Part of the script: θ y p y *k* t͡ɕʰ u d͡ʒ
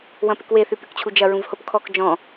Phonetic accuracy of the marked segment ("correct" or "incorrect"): correct